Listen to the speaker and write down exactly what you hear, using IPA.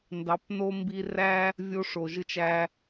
n d ɑ˨˦ p n o˦ m b i˧ r æ˦ | vʲ o˧ ʂ o˨ ʒ ɯ˧ t͡ʃ æ˧

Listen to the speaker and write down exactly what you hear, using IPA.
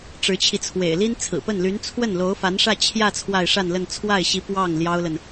ʈ͡ʂ ɻ̩˧˥ t͡ɕʰ i˧ t͡sʰ w ḛ˨˩ ɪ̯ l i˥ n t͡sʰ ɹ̩˨˩ p ə˥˩ n l y˧˥ n t͡sʰ w ə˥˩ n l o˧˥ ʊ̯ f a˧˥ n ʂ ä˥˧ t͡ɕʰ j ä˥˧ t͡sʰ w a˥˧ ɪ̯ ʂ a˥˧ n l ə˥˧ n t͡sʰ w a˥˩ ɪ̯ ɕ i˧˥ p w ɑ˥˩ ŋ l j ɑ˥ ʊ̯ l ə˨ n

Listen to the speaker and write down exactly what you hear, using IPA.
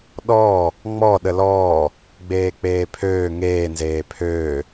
ɗ ɔː | ŋ͡m ɔ ɗ ə l ɔː | ɡ͡b eː k͡p eː pʰ øː ŋ eː n z eː pʰ øː

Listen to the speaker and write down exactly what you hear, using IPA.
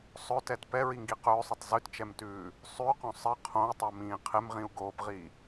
sˤ ɵ t ɛ t p ɛ ɹ i ŋ ɡ i q ɵː sˤ ɵ tˤ z ʉ t t͡ʃ ɛ m t ʉː | sˤ ʉ q õ sˤ ɪ qʰ õ u̯ tˤ ɛ m ĩː qʰ ɪ m ʁ ĩ u̯ ɡ oː p ʁ i

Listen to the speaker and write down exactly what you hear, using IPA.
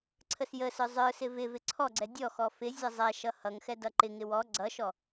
ǀʰ ə s j ə s ə˞ zˤ ə˞ s ɪ v ɪ v ɪ ǀʰ ɔ ɡ͡ǀ ɛ dʲ ɔ x ɔ f ɪ zʲ ʌ zˤ ɛ ʃ ʌ h ʌ ŋ x ɛ d ʌ ǃ ɪ ŋ ɪ w ɔ ɡ͡ǀ ʌ ʃ ɔ

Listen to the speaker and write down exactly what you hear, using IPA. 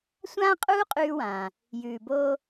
sʷ ãː˥ qʼ uː˥ qʼ ʉː˧ w ãː˩ | j ʉː˩ b oː˧

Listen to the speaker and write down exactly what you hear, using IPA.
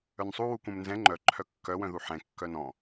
œ n sˤ u w u k ũ m n z ɛ̃ ŋ͡ǃ œ ǃʰ œ kː œ w œ̃ ð u ħ ɛ̃ kː œ n ɔ̃

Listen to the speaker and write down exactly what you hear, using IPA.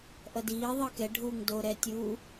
ʔ ʌ d iː ðˤ ɯ k ɛ ɖʱ uː ŋ d o ɾ ɛ tʲ uː

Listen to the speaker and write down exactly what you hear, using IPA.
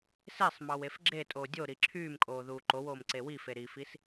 s e sˤ m ɑ w e f ɡ͡ǁ e tʼ oː dʲ o ɾ i ǁʰ yː m kʼ oː ð uː ǃ o w oː m ǀ e w i f e ɾ i f i s

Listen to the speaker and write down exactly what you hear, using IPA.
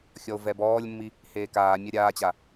xʲ ɔ o̯ v ɛ b ɔː lʲ mː i | h eː k aː mʲ a ɾʲ aː t͡ɕ a

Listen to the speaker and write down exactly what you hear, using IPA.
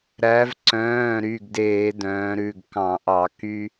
ɾ æ˩˧ v ǀ œ̃ː˩˧˩ ɾ y˩˧˩ ɡ d eː˧˩˧ d œ̃ː˩˧ ɾ ʉ˩˧˩ ɡ k ɑ̃˧˩˧ ʔ ɑ˧˩˧ k y˦

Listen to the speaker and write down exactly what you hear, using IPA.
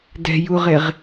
d ɛ̤ j u ʁ e ʁ

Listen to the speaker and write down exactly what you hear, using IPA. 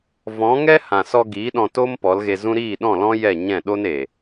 v ɔ̃˨˦ ŋ ɛ˦ h ã˨ s ɔ˧ ɡ iː˨˦ ɗ ɔ̃˧ t o˦ m p ɔ˨˦ l ɣ e˧ z ũ˦ ɾ iː˦˨ ɗ ɔ̃˦˨ l ɔ̃˦ j ɛ˦˨ ɲ ɛ̃˦˨ ɗ o˦ n e˨

